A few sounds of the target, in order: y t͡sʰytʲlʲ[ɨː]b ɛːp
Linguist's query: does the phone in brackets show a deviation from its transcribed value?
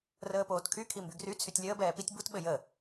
yes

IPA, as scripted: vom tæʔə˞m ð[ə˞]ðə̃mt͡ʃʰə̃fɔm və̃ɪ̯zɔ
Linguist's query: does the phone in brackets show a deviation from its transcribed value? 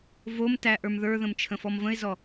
no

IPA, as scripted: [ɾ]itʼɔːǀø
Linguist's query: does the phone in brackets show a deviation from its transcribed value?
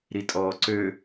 no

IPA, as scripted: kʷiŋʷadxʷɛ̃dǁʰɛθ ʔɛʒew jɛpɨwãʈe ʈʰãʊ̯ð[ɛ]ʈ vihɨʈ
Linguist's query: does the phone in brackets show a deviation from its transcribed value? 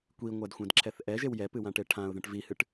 yes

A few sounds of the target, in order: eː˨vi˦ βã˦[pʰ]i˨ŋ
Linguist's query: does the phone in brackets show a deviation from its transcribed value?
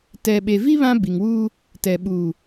yes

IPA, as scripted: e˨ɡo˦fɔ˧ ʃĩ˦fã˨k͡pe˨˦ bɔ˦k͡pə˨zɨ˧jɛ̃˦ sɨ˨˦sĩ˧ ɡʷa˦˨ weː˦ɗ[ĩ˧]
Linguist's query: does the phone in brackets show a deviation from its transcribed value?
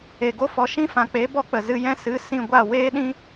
yes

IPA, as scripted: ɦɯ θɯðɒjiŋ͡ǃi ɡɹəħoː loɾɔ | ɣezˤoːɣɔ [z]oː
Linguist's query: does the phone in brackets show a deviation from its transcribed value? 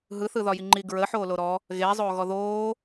yes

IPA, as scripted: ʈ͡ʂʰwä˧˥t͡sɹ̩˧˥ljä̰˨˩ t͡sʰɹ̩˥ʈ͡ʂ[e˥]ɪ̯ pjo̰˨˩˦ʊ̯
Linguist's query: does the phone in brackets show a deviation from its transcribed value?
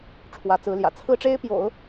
no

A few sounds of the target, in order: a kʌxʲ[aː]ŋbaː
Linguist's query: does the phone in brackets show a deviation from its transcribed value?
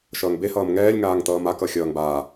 yes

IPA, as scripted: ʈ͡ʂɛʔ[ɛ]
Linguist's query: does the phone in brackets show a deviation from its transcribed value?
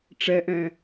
yes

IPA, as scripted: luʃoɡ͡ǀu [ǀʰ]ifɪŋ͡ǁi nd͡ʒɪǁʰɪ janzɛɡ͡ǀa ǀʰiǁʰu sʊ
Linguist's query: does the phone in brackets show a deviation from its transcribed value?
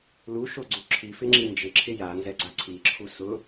yes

